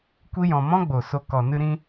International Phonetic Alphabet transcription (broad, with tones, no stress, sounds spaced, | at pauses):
kʷ i˧ j ɔ̃˨ m ɔ̃˦ ɡ͡b o˨ s o˧ k ɔ˨ n ɨ˧ ɾ ĩ˧